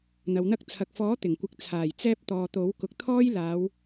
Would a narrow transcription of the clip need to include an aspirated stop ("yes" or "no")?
yes